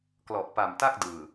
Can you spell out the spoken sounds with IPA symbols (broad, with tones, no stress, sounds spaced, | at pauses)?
k l ɔ˨˩ ʔ p a˨˩ m t a˥˩ k̚ d ɯː˨˩